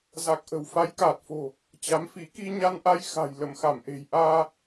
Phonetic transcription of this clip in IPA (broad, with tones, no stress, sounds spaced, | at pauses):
z a˨˩ k̚ ʔ ə̤˨˩ w f a˨˦ j k aː˨˩ t̚ f o̤˨˩ | t͡ɕ a˨˦ m f i˨˦ k i˧ ɲ a˧ n ʔ a˧ j x a̤˨˩ j l ə˧˩ m x a˧˩ m ʔ e̤˨˩ j ʔ aː˧